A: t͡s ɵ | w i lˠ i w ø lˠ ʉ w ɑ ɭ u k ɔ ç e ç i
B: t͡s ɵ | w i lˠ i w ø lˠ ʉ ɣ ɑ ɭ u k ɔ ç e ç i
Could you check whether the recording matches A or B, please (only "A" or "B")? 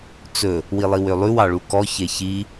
A